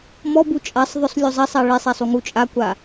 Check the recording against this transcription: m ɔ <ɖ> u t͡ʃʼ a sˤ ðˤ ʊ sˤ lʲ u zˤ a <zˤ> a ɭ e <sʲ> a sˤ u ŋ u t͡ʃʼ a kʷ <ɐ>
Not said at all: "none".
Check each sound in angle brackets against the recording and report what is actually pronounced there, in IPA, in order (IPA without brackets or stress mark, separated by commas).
b, sˤ, sˤ, a